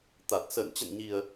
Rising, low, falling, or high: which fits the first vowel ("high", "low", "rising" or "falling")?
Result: low